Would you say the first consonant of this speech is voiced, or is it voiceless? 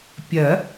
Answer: voiceless